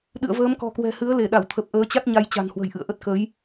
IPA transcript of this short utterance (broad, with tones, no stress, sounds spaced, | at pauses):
ɗ ɨ̰˧˨ ə̯ v əː˨˦ m k ɔ̤˨˩ k w ɛ̤˨˩ h ɨ˨˦ ə̯ l e˧˩ ɗ a˧˩ w t̪ʰ ə˨˩ p̚ ʔ əː˨˦ t͡ɕ a˦˥ t̚ ɲ a˧ j t͡ɕ a̤˨˩ n h w ə̤˨˩ j ʔ ɨ̰˧˨ ə̯ ʔ ə˦˥ t̚ k ə˨˦ j